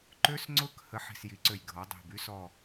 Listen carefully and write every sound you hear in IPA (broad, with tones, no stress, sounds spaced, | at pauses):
ǃ ø˦˥ s ŋ͡ǀ ʊ˦˥ k h ə˦˥ ħ i̤˧˩ s j i˩˥ ǀ ø˧˩ j ɡʱ ɔ˩˥ dˤ i̤˧˩ b y˦˥ s ɔ˧˩